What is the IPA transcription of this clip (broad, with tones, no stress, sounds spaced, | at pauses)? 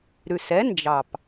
ɾ ʉ˨˩ s ɛ˨˥ n d͡ʒ ɑ˨˩ p